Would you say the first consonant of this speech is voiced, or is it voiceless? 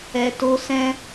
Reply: voiceless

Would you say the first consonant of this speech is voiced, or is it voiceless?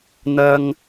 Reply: voiced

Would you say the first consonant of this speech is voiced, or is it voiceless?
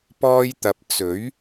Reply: voiceless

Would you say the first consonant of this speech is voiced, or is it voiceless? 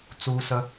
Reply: voiceless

